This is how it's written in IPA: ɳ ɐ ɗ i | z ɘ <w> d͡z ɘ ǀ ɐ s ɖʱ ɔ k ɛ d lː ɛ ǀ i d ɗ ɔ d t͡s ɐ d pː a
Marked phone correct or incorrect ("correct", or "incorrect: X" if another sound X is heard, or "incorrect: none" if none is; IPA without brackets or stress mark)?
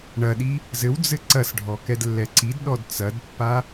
correct